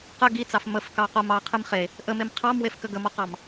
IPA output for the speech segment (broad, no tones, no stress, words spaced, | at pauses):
qə ɡit͡sɑf məfkɑqom ɑqʰɨm χe | ʔəmem qʰɑmwefkə ɡəmɔqɑm